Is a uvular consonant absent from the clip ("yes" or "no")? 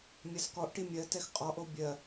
no